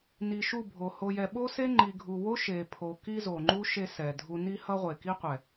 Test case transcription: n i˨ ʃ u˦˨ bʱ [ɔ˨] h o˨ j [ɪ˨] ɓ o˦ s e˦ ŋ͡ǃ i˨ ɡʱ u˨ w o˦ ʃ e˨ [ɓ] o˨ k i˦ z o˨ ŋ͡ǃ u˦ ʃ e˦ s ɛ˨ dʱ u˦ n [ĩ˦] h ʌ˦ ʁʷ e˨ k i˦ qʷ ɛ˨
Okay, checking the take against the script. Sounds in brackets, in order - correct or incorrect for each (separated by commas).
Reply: incorrect, incorrect, incorrect, incorrect